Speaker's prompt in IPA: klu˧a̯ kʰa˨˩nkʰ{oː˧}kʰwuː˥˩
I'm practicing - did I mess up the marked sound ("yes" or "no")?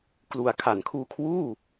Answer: yes